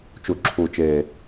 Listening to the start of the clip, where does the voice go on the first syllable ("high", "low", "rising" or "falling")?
low